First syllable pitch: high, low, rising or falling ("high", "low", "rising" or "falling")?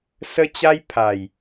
high